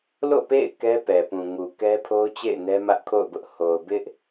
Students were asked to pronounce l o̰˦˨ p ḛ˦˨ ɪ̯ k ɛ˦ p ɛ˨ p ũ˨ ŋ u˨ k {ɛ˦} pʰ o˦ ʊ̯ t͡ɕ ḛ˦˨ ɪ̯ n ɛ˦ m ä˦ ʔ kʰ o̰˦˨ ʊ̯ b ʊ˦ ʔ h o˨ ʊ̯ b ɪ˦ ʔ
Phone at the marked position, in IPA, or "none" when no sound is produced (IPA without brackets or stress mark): ɛ˦